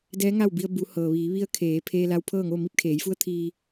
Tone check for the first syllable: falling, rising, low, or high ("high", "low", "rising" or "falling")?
rising